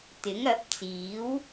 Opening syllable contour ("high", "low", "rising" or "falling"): rising